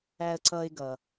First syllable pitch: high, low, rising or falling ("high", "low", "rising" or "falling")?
high